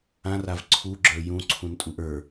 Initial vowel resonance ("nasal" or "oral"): nasal